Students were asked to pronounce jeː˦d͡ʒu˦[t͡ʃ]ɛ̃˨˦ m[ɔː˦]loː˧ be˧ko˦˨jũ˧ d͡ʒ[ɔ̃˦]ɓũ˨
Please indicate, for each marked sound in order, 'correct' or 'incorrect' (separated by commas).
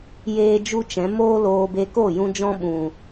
correct, incorrect, correct